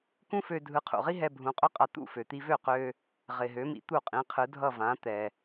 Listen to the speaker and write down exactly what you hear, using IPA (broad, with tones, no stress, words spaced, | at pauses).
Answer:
kũ˥fø˧ dʱɯ˩˥qʰṵ˩ʁi˥ɦɛ˧ bʱũ˩˥qʼø˥qʼa˧ t̪ṵ˥˩fø˩t̪i˧ vø˥˩qø˧ | ʁɪ˩ ɦø˩˥mḭ˩˥ t̪u˥˩qʼĩ˩˥qʰɯ˩˥dʱʌ˥˩ vã˩˥t̪ɛ˩